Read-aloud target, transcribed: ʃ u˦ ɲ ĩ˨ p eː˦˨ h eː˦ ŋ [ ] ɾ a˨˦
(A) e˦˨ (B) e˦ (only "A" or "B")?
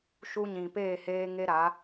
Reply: B